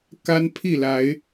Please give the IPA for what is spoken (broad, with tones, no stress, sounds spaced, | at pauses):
k a˦ n pʰ i˥˨ l a˨˦ ɪ̯